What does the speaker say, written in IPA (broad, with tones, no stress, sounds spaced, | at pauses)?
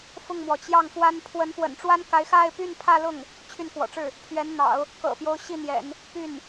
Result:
f ʊ˥˩ ŋ m w ɔ˩ t͡ɕ j ɑ˥˩ ŋ f w a˥ n pʰ w ə˧˥ n f w ə̰˨˩ n ʈ͡ʂ w a˥ n k a˧˥ ɪ̯ x a˥˧ ɪ̯ p y˥˧ n pʰ ä˥˧ l ʊ˥˩ ŋ | t͡ɕʰ y˥˩ n k w ɔ̰˨˩ ʈ͡ʂ ɻ̩˥˩ | pʰ ɥ ɛ˧˥ n n̪ ɑ̰˨˩˦ ʊ̯ | k ɤ̰˨˩ p j o˦ ʊ̯ ɕ i˥˩ n̪ j ɛ̰˨˩˦ n | p y˥˩ n